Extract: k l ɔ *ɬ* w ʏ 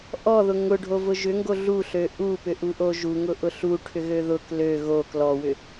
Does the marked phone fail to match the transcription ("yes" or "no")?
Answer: yes